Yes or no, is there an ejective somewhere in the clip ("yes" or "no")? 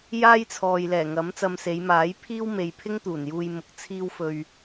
no